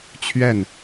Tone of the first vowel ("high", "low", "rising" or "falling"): falling